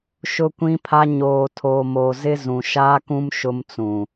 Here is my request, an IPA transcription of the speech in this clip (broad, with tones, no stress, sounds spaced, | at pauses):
ʃ ʊ˦ kʷ ĩ˦ pʰ a˦ ɲ oː˨ tʰ oː˨ m oː˨ z ɪ˦ z ũ˨ ʃ aː˦ k ũ˦ m ʃ ʊ˦ m t͡s ũ˨